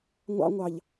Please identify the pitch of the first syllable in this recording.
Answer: high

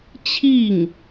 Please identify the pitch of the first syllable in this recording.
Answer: falling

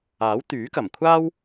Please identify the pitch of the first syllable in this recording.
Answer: rising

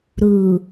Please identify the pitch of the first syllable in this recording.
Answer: low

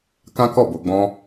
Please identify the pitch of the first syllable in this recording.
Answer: high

